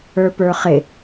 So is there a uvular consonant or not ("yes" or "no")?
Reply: yes